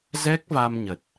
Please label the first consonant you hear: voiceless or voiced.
voiced